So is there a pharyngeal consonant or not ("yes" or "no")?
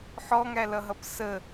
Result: yes